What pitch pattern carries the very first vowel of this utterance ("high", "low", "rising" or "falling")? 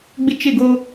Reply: high